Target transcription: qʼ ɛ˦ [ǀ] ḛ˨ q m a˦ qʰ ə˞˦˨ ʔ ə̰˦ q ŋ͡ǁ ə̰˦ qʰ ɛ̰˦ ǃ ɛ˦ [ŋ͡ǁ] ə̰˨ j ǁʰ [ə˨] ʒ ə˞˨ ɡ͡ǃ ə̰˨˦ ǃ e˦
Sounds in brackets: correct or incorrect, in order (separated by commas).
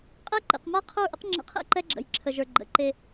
incorrect, incorrect, correct